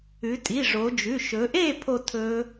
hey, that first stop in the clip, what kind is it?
ejective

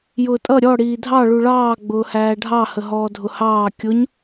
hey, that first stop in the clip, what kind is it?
ejective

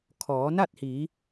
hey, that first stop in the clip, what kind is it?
aspirated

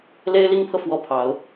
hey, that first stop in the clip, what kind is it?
aspirated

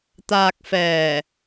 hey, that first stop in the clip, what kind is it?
plain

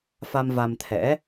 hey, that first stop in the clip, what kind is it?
aspirated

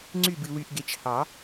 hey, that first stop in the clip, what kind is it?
click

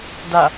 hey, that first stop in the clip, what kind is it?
plain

